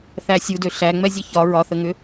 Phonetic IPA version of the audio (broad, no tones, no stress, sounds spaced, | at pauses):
θ æ sʲ u d ø ɬ æ ŋ͡m ɛ zʲ ə ç ɒ ɹ ɒ θ ə ŋ ʏ